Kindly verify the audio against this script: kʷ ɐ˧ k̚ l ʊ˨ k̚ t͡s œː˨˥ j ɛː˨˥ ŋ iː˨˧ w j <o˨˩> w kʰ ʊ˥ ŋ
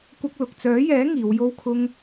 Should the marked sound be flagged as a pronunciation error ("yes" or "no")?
yes